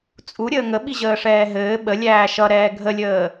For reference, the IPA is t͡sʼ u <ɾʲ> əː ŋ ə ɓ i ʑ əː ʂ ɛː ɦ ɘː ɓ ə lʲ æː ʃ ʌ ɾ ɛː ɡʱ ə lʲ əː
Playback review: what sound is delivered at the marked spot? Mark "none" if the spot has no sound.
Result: ɾʲ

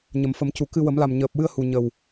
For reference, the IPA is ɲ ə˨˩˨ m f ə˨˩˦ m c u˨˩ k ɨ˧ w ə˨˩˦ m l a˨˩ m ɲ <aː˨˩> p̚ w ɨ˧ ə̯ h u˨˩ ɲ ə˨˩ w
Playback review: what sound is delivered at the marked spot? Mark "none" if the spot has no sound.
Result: əː˨˩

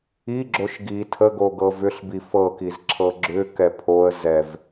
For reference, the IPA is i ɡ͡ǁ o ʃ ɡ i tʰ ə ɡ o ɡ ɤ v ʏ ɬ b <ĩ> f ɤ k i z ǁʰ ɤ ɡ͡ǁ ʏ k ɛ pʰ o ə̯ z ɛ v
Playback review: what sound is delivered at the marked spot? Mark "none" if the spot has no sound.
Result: i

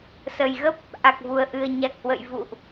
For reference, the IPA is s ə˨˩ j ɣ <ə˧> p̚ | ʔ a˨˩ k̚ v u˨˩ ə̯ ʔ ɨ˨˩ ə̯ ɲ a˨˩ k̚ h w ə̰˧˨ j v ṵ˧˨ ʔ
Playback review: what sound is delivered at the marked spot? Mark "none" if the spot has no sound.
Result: ə˦˥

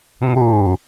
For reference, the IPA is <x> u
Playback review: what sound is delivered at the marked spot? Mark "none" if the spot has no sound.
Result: ŋ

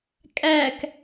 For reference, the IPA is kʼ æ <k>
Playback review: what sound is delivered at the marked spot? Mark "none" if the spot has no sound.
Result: k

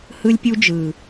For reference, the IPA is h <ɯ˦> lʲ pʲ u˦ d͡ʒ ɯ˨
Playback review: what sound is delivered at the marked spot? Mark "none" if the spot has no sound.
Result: ɯ˦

